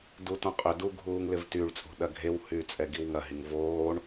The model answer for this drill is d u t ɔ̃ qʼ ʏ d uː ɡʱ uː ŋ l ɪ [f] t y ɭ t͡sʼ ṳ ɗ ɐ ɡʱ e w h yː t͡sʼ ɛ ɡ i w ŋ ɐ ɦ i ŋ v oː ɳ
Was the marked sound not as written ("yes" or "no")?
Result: yes